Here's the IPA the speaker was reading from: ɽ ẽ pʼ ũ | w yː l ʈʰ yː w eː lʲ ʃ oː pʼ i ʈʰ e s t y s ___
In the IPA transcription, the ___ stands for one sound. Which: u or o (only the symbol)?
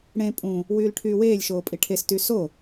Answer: o